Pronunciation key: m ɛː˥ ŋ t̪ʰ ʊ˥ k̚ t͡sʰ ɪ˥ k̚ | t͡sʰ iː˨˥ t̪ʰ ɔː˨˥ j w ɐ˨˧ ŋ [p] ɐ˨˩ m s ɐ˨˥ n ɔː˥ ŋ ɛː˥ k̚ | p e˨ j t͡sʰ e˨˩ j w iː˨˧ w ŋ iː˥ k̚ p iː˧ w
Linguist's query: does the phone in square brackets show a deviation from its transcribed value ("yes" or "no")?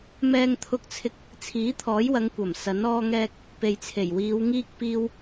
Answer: yes